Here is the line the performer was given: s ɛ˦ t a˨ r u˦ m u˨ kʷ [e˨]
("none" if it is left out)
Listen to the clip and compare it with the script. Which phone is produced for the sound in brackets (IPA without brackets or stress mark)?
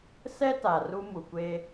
e˦